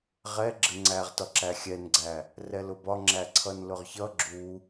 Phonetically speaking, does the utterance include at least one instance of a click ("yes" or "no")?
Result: yes